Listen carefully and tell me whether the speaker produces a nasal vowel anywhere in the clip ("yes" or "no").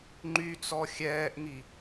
no